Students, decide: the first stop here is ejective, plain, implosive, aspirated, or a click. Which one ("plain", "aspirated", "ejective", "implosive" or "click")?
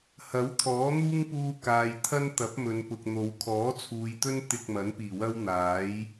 aspirated